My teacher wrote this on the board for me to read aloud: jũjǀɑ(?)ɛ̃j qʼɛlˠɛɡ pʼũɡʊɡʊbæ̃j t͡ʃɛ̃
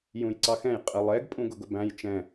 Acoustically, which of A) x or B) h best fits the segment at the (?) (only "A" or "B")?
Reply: A